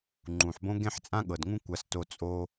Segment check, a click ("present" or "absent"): present